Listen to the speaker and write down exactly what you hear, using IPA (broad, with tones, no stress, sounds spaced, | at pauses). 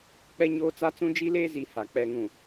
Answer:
k͡p ɛ˦ ɲ oː˦ t͡s a˦ t͡s ũ˦ d͡ʒ i˦ l eː˦ z i˨˦ h a˨ k͡p ɛ˨ ŋ ũ˨